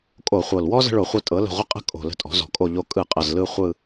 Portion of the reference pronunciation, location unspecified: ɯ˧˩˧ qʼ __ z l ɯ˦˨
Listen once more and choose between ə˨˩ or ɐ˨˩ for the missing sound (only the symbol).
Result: ɐ˨˩